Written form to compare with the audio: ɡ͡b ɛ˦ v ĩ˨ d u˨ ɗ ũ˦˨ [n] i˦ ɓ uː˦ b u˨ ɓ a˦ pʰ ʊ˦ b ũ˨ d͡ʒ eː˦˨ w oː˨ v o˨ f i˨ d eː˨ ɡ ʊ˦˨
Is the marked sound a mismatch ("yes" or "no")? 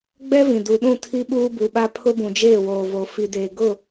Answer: yes